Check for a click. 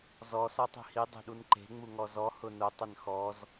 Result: present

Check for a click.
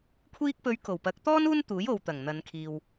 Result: absent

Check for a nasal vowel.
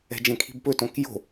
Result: present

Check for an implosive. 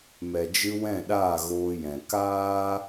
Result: present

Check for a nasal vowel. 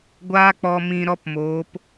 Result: present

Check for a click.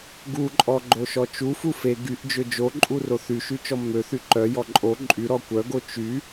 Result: present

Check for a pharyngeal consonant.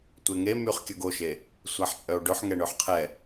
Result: present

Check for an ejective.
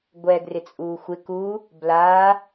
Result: present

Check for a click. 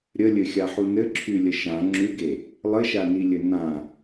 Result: present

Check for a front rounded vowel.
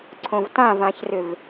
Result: present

